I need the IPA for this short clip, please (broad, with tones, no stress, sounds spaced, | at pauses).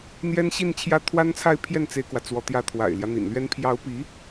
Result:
n̪ j ɛ˥ n ɕ i˥˧ n t͡ɕʰ j ä˥˩ t̪ʰ w a˥ n t͡sʰ a˥˧ ɪ̯ pʰ j ɛ˥˩ n t͡s e˥ ɪ̯ k w ä˨ t͡s w ɔ˧˥ t̪ j ä˥ t̪ʰ w a̰˨˩ ɪ̯ l j ä˦ n̪ ḭ˨˩ n l ɥ ɛ˥ n pʰ j ɑ˧˥ ʊ̯ p i˧˥